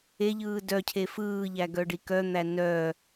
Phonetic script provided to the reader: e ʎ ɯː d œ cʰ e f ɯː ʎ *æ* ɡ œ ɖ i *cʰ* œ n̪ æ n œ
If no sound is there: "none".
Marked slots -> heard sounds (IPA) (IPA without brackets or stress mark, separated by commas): æ, k